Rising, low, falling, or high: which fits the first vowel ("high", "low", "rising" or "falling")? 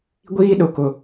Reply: high